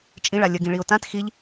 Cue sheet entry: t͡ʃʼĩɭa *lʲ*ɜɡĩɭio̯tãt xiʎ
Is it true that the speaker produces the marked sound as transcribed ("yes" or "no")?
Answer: yes